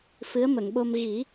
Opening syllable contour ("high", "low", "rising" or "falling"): rising